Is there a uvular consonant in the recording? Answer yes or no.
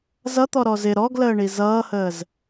no